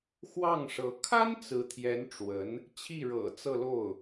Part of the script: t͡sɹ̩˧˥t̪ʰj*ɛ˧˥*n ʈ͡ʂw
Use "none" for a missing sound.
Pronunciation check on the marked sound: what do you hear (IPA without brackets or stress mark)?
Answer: ɛ˧˥